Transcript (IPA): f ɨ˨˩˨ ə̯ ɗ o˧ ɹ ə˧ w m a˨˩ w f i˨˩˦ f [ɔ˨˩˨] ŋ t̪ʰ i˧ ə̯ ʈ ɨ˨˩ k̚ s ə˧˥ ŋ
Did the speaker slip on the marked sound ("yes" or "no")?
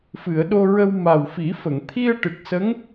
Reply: yes